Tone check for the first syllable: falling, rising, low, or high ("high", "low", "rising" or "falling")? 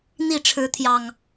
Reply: falling